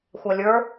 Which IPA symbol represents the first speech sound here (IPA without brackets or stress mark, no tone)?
xʷ